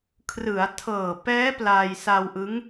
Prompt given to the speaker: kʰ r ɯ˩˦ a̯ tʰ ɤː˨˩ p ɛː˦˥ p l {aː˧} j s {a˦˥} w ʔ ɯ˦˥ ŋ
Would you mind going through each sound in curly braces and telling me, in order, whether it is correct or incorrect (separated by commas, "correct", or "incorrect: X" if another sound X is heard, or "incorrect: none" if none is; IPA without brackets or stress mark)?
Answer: correct, incorrect: a˧